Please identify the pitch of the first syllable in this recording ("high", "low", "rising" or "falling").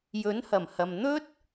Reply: rising